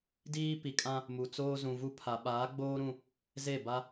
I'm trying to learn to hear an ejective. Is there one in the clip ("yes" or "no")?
yes